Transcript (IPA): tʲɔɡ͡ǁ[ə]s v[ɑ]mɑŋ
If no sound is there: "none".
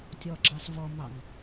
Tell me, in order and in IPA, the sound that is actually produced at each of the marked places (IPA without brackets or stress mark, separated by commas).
ɑ, ɔ